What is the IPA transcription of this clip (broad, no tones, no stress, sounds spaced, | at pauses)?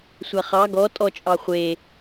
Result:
sʷ a χ ɑ ɡ ɔ tʼ ɔ t͡ʃʼ ɑ χʷ e